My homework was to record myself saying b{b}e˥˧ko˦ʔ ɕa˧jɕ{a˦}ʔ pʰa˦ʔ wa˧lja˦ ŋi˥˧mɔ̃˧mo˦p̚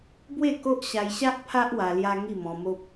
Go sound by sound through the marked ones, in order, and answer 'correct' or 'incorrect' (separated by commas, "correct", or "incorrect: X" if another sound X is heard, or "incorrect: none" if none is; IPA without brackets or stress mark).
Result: incorrect: w, correct